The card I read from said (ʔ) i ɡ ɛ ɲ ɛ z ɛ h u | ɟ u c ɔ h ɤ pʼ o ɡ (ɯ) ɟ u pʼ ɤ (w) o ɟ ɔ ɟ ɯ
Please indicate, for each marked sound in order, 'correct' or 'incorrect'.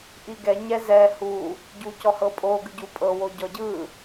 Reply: correct, correct, correct

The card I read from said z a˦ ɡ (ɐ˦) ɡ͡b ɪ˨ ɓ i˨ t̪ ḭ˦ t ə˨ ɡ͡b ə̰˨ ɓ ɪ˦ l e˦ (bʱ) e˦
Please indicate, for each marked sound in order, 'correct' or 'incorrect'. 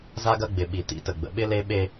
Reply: correct, incorrect: ɓ

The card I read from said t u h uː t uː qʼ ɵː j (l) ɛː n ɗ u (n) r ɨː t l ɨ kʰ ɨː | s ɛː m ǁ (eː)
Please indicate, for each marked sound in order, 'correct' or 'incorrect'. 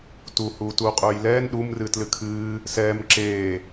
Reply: correct, incorrect: m, correct

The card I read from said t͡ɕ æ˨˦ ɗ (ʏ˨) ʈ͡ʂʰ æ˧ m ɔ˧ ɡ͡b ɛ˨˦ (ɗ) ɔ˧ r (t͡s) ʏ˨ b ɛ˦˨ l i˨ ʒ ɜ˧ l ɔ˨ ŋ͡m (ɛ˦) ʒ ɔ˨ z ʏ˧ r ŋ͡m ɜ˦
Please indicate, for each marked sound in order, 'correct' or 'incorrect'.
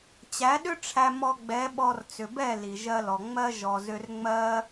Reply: incorrect: ʏ˦, incorrect: ɓ, correct, incorrect: ɜ˦

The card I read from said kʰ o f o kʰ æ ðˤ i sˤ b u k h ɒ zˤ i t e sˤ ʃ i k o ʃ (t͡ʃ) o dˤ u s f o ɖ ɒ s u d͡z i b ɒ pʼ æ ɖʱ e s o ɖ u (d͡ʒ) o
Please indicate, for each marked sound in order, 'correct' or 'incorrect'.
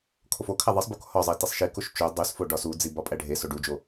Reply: correct, correct

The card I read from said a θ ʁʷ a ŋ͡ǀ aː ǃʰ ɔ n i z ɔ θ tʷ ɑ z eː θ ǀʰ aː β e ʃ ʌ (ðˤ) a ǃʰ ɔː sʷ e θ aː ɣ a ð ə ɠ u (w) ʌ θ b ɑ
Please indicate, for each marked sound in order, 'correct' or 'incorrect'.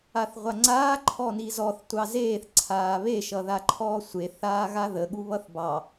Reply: incorrect: ð, incorrect: β

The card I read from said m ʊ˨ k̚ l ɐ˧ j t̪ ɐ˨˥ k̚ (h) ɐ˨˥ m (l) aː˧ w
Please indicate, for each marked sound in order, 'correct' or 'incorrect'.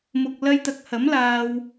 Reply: correct, correct

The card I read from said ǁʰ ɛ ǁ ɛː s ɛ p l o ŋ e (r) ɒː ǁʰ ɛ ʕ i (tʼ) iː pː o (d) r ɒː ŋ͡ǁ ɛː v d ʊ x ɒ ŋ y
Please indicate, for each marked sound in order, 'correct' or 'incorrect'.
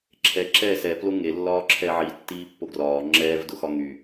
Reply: incorrect: lː, incorrect: tː, incorrect: ɡ

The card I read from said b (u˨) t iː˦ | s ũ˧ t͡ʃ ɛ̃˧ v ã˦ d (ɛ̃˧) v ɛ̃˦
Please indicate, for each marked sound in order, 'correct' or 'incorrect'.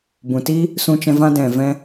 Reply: incorrect: ũ˨, incorrect: ɛ̃˨

